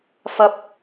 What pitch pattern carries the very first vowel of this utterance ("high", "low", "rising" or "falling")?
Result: high